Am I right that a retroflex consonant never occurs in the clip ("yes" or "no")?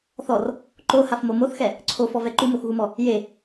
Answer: yes